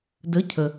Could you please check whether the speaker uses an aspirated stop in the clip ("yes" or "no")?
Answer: yes